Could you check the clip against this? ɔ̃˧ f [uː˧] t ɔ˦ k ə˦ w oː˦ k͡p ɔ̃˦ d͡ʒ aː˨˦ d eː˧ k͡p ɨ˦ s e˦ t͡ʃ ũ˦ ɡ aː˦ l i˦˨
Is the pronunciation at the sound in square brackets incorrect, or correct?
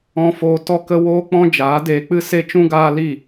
incorrect